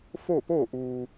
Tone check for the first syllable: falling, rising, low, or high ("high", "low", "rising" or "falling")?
falling